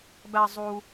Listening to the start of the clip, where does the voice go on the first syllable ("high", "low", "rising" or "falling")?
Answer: high